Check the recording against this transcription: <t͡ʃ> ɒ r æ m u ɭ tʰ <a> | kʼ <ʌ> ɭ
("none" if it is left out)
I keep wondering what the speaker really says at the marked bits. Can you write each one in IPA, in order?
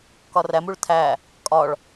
k, æ, ɒ

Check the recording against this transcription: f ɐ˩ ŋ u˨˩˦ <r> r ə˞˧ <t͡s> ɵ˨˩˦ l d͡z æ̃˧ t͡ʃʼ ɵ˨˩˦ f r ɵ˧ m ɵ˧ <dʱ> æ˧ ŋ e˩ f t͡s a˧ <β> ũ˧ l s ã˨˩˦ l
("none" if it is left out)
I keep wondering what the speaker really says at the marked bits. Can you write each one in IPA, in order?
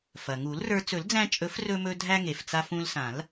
l, t͡s, dʱ, f

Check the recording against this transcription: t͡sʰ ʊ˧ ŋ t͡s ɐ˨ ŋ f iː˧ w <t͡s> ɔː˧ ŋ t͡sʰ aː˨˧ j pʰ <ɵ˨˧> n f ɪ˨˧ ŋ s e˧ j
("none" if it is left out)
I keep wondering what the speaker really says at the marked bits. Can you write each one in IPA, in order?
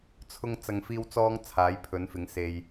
t͡s, ɵ˨˧

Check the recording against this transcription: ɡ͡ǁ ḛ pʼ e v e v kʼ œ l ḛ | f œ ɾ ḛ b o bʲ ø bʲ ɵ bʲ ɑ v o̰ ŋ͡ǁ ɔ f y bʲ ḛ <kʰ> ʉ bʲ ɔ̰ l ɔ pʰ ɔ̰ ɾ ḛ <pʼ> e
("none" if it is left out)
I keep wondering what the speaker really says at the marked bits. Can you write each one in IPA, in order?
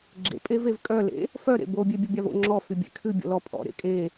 kʰ, kʼ

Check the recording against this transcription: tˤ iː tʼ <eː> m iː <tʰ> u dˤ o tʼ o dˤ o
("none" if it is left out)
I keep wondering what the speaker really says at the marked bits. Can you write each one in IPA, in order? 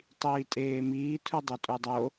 eː, tʰ

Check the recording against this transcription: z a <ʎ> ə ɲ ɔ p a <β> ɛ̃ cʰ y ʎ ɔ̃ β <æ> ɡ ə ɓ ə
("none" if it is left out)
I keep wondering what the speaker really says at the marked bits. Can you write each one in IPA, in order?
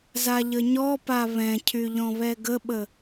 ʎ, β, ɛ

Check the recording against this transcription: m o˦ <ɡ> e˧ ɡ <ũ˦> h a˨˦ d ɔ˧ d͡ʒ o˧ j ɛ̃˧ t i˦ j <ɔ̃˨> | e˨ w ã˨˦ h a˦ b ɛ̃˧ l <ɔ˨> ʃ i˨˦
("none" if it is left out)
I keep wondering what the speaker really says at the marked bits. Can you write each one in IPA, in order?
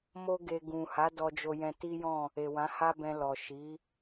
ɡ, ũ˨, ɔ̃˦˨, ɔ˨

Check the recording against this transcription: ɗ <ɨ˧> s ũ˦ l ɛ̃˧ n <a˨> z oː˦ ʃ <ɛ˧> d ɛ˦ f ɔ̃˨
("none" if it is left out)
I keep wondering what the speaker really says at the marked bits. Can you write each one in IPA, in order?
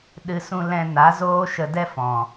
ɨ˧, a˨˦, ə˧

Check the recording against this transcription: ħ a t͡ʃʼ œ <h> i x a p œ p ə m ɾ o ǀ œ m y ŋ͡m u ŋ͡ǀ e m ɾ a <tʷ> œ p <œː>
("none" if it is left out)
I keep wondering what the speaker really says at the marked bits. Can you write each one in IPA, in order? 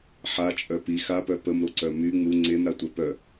p, tʷ, œ

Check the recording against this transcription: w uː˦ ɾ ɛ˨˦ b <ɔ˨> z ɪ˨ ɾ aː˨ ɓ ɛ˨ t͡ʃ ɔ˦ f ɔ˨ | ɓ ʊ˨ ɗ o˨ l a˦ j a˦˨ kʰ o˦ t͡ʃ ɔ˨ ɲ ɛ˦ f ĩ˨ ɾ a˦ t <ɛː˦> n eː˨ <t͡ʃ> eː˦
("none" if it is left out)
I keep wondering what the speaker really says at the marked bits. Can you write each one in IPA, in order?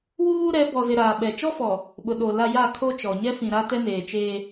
ɔ˨, ɛ˦, t͡ʃ

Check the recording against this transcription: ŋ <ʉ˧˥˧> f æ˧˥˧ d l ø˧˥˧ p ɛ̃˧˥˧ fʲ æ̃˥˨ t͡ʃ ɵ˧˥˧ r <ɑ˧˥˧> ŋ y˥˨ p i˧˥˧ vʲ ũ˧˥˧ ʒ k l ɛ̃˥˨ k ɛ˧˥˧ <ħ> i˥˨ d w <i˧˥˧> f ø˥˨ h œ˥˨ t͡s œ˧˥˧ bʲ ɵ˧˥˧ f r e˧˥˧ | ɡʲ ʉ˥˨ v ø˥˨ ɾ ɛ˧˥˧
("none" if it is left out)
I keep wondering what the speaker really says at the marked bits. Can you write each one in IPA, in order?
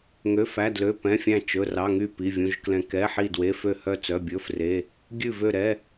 ø˧˥˧, ɑ˧˥˧, ħ, e˧˥˧

